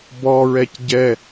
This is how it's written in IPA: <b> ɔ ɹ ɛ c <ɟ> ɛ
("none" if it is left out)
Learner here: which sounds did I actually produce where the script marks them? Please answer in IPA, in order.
b, ɟ

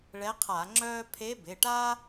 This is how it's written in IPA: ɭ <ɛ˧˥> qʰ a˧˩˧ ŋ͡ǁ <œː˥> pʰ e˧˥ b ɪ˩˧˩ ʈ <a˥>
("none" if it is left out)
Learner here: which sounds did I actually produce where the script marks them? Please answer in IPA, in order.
ɛ˧˥, œː˥, a˥

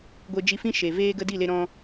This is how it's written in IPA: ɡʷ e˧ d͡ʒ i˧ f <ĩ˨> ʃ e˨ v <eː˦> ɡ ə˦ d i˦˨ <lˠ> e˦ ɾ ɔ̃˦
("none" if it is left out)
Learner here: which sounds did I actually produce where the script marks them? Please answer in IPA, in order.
ĩ˦, eː˦, l

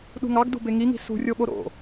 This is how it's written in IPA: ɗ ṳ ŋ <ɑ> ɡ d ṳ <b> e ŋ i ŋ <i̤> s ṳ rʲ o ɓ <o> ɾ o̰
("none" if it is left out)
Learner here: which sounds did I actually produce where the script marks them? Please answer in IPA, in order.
ɑ, b, i̤, o

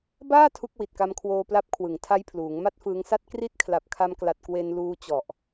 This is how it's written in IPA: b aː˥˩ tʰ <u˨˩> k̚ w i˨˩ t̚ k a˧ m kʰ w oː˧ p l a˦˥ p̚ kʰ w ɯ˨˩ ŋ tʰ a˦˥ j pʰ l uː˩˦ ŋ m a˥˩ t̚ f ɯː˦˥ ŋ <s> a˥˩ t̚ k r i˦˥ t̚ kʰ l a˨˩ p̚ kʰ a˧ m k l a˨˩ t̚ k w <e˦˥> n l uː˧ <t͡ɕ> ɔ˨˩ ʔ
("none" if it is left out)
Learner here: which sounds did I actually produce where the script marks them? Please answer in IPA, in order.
u˦˥, s, e˧, t͡ɕ

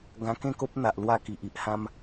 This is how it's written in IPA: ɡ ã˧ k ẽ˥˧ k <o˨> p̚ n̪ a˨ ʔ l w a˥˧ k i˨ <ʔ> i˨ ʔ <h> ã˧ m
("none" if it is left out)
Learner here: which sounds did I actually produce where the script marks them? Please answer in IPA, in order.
o˦, ʔ, h

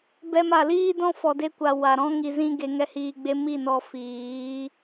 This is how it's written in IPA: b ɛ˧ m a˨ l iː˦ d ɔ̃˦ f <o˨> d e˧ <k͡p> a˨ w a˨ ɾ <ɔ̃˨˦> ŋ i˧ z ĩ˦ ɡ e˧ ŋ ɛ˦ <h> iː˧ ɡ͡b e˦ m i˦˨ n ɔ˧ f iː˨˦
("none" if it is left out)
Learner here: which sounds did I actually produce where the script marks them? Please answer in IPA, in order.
ɔ˨, kʷ, ɔ̃˦, h

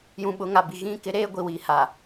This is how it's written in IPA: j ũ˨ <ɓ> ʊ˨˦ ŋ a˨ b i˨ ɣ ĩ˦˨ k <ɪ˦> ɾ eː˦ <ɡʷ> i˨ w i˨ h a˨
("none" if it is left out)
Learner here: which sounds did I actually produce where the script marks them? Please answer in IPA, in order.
ɓ, ɪ˦, ɡʷ

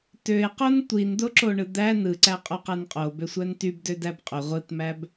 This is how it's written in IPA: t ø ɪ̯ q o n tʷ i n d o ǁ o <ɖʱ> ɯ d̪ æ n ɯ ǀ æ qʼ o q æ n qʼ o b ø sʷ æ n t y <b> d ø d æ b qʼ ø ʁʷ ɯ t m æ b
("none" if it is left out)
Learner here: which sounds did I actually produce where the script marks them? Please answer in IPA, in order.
ɳ, b

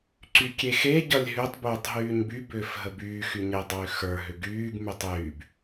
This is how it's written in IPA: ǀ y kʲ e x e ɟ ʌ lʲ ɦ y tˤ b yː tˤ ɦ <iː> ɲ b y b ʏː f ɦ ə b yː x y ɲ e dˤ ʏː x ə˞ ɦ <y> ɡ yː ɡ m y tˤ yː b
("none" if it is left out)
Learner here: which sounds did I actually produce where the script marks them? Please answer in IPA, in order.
yː, ʏ

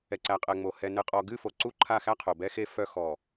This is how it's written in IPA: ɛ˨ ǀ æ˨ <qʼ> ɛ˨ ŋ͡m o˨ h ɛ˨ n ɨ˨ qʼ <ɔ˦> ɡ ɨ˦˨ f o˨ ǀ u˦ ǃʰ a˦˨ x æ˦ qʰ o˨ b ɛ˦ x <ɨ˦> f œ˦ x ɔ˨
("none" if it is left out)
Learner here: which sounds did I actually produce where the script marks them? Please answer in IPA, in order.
qʼ, ɔ˨, e˦

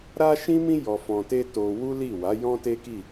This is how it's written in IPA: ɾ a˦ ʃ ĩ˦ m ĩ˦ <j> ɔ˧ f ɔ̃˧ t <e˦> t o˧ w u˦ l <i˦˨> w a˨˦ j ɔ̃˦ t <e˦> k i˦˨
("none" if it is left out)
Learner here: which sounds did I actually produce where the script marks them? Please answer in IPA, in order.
j, e˦, i˦˨, e˦

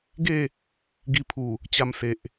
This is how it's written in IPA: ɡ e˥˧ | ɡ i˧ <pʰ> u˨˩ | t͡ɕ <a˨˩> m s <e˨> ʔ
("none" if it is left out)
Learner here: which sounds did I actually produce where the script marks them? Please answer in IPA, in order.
pʰ, a˧, e˨

